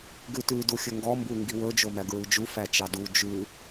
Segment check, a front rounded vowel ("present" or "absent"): absent